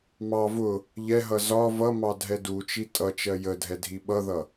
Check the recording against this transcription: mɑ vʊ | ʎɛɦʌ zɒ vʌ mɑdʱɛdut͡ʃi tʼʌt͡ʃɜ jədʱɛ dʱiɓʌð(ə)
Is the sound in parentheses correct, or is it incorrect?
incorrect